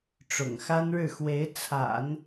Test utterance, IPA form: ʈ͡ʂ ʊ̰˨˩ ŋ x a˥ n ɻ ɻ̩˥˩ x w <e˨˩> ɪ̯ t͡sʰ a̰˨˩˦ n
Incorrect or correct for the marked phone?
incorrect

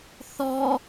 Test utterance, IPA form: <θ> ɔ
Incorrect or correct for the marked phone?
correct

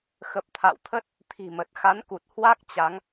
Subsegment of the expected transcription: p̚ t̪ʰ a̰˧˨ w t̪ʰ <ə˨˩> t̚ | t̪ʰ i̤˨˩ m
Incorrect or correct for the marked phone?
incorrect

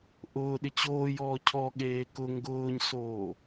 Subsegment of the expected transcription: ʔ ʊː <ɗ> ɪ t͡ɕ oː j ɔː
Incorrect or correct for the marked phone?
correct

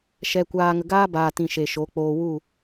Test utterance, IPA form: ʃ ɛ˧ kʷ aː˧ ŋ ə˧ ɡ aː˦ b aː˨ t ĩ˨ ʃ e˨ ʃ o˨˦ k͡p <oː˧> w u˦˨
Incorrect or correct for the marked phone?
correct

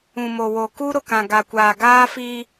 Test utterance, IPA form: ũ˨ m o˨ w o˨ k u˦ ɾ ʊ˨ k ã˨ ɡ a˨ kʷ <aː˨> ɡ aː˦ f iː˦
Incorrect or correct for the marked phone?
correct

